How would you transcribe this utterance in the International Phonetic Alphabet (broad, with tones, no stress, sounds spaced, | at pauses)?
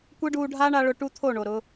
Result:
kʷ e˦ ɖ uː˧ ɖʱ aː˦ ɳ a˧ ɭ ʊ˧ ʈ u˦ t̪ʰ o˦˨ ɳ o˨ ɾ ʊ˧